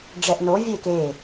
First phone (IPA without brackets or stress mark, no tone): ɖ͡ʐ